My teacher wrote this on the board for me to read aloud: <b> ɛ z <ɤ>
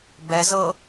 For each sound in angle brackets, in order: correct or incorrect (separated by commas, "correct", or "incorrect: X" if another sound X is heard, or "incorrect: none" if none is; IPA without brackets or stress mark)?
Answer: correct, correct